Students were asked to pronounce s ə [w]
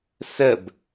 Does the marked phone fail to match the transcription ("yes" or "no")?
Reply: yes